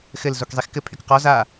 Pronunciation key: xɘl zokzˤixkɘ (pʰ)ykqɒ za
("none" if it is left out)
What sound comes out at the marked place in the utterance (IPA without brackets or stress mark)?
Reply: pʰ